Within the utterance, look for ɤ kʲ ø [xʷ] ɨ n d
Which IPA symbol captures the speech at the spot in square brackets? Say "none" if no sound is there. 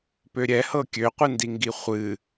qʷ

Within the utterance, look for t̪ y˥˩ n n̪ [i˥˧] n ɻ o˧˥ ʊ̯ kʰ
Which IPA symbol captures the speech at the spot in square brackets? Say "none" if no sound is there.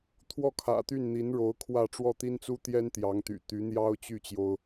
i˧˥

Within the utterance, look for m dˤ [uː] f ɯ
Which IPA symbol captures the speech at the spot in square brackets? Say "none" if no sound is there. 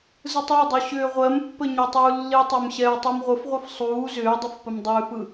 ʏː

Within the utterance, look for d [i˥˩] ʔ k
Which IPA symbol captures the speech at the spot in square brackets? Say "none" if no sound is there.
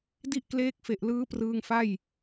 i˥˩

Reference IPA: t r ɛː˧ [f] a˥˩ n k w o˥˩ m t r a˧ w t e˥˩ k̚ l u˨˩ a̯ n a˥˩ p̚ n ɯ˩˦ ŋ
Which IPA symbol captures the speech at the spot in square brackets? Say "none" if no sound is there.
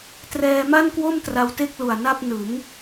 m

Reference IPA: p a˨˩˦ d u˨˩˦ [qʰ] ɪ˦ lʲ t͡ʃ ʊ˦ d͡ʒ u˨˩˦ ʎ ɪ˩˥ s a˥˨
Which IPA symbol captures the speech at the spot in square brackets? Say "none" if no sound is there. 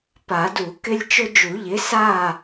k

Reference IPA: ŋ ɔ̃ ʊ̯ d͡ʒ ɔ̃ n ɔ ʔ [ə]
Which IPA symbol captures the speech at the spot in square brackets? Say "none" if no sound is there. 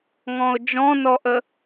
ə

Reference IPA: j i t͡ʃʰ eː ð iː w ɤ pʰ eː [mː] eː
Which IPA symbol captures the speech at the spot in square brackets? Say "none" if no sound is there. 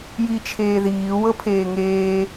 ŋ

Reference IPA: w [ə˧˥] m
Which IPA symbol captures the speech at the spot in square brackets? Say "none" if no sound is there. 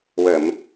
ə˨˩˨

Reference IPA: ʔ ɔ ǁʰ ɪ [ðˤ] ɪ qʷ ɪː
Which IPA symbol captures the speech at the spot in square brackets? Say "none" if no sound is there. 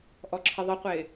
ðˤ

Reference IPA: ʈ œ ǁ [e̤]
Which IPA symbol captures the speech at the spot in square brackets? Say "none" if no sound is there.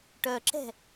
ɛ̤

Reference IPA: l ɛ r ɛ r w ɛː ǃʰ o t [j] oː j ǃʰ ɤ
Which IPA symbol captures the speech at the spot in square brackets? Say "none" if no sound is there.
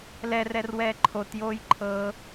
j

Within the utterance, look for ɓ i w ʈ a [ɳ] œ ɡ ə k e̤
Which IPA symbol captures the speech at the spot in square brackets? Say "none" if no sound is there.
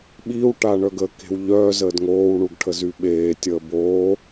ɳ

